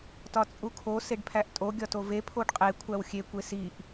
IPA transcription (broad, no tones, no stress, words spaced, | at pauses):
tɒt͡sʼukʰo seɖpʰæʔtʼo ɡʲɒtove pʰoɖqʼe kʷʰæwxʲe kʷesiʔ